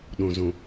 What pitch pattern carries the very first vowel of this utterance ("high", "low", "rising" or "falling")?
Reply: low